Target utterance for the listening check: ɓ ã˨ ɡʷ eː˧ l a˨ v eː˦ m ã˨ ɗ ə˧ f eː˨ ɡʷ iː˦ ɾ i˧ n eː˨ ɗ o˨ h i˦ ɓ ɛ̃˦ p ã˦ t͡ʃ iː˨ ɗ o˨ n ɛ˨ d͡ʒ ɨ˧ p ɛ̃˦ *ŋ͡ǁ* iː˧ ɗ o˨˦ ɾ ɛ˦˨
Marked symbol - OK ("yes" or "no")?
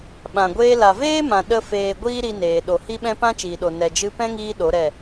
no